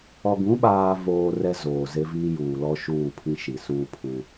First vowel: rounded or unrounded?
rounded